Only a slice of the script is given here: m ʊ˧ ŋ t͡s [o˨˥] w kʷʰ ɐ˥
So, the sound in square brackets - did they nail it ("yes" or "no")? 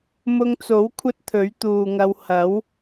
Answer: yes